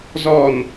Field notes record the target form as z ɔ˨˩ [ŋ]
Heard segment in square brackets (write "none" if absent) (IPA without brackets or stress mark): n